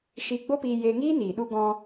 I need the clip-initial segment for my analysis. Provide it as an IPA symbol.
ʃ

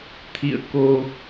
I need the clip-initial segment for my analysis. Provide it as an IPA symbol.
t̪ʰ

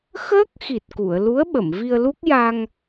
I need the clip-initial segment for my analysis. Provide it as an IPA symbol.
x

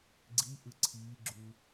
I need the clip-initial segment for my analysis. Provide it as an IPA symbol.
ɡ͡ǀ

